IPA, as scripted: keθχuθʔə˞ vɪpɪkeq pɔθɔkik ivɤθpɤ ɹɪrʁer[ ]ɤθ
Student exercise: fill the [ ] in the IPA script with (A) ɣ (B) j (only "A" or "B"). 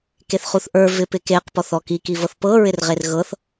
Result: A